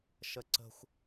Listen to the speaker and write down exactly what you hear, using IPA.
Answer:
ʃ ə ǀ ə̤ xʷ

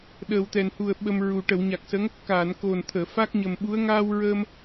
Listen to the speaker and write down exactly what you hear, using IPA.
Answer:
ɗ əː˨˩ w t̪ ɛ˨˩ n h u˨˩ ə̯ ɓ ə˧ m ɹ u˨˩ ʈ ə˨˩˨ w ɲ a˨˩ k̚ s ə˧˥ ŋ | k aː˨˩˨ n k o˨˩ n t̪ʰ əː˨˩˨ f a˦˥ k̚ ɲ ə˨˩ m ɓ u˧˥ ə̯ ŋ aː˧ w ɹ əː˧ m

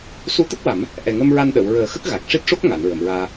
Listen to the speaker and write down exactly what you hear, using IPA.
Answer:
s u˧˥ t̪ ə˦˥ k̚ w a˨˩˦ m | ʔ ɛ˨˩ ŋ ə˧ m ɹ a˧ n ɗ ə˨˩˨ w ɹ əː˨˩˦ x ə˦˥ k̚ ɣ a˨˩ k̚ ʂ i˦˥ t̚ ʂ o˦˥ k̚ ŋ a˨˩˨ n ɹ ə˨˩˨ m ɹ aː˧

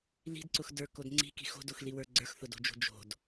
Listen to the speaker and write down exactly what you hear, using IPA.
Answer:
l i̤ d ǀ ʊ x d ə˞ k o d ŋ͡ǀ i̤ k i̤ x o̤ d o x l i w ə˞ ɡ͡ǀ ə˞ x θ ʊ d o̤ d͡ʒ o̤ d͡ʒ o̤ d

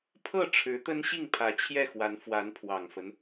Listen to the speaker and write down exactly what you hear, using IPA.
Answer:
pʰ ɤ˥˩ ʈ͡ʂʰ ɻ̩˧˥ t̪ ə˥ n ɕ i˥˩ ŋ pʰ ä˧˥ t͡ɕʰ j ɛ˥˩ x w a˧˥ n f w a˧˥ n pʰ w ɑ˨˩ ŋ f ə˦ n

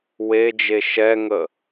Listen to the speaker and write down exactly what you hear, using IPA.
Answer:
w e d͡ʒ e ʃ ɛ ŋ ə

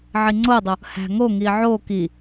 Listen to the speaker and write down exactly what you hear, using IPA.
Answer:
ʕ i ŋ͡ǀ o dˤ o | h æ̤ ŋ o ŋ i ʕ o k i

